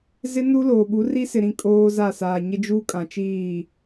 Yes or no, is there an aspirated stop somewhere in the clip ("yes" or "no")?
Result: no